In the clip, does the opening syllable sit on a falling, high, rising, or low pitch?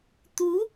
rising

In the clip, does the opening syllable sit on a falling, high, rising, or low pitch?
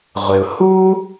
low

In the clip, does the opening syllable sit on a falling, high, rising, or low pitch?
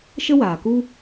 high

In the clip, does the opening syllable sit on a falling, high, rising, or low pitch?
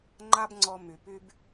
high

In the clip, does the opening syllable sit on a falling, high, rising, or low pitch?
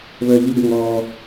low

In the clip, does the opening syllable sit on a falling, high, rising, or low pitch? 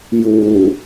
low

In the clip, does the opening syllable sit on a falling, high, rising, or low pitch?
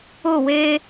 falling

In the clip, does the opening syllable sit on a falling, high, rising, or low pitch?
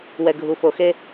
low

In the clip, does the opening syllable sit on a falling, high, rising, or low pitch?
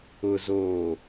low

